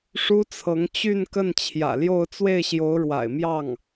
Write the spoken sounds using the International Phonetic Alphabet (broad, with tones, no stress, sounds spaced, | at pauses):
ʂ u˥ t͡sʰ ɤ˧˥ ŋ t͡ɕ y˥˧ n k ə˥˩ n t͡ɕʰ j ä̰˨˩ l j o˥˧ ʊ̯ t͡s w e˥˩ ɪ̯ ɕ j o˧˥ ʊ̯ ɻ w a̰˨˩ ɪ̯ m j ɑ˥˩ ŋ